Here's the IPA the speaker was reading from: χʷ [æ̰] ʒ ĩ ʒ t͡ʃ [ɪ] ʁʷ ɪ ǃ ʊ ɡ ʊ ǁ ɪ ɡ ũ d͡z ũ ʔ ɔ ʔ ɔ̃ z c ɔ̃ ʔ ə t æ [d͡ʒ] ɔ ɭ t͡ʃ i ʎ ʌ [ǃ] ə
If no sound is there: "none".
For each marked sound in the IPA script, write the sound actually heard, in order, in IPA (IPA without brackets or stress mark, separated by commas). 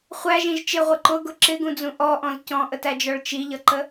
æ, ɪ, d͡ʒ, ǃ